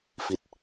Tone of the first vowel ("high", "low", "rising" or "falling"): falling